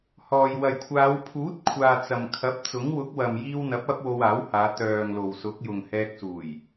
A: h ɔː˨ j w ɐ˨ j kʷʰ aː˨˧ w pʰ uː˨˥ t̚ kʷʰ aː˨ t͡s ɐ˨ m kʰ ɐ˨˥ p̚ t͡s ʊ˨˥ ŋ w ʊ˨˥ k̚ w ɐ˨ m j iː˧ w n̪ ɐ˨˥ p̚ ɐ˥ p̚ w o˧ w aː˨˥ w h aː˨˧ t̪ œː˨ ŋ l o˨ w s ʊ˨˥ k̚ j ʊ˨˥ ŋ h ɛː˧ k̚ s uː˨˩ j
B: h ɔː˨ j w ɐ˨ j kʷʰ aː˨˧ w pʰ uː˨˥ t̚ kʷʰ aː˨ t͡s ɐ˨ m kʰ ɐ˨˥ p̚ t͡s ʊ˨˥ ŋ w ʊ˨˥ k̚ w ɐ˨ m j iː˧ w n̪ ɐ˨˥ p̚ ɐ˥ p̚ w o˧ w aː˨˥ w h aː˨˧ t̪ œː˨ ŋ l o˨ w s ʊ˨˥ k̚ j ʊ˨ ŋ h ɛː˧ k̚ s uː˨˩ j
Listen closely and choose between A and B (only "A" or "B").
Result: B